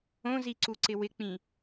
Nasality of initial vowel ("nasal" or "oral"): nasal